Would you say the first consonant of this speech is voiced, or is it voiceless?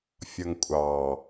voiceless